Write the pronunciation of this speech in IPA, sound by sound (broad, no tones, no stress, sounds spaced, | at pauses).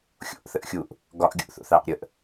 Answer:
xʲ o̰ ʔ θ ə ʔ xʲ u ʔ | ɡ ɒ ʔ ɡʲ ṵ ʔ θ o̰ θ ɑ ʔ ɾʲ ə ʔ